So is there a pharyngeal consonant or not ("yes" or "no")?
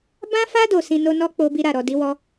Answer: no